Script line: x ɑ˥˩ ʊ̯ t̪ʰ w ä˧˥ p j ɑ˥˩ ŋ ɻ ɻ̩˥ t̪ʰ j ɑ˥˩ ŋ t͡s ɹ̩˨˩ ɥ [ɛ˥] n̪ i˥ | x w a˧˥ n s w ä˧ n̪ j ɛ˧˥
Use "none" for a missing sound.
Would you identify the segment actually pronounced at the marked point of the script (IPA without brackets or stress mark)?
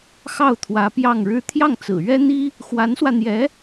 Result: ɛ˥